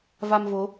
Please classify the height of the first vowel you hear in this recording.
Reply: low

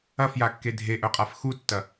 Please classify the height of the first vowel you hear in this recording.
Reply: low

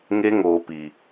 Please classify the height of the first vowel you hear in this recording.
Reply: mid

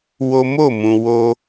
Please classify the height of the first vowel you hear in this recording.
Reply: mid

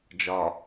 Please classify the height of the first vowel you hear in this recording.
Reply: low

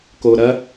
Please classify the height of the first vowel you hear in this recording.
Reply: mid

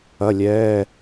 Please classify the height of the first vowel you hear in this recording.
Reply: low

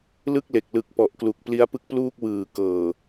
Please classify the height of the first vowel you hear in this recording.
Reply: high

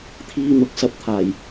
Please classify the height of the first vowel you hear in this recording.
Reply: high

